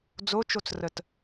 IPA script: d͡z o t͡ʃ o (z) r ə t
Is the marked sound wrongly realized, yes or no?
yes